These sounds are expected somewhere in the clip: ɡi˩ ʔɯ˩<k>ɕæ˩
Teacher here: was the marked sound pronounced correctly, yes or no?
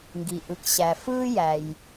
yes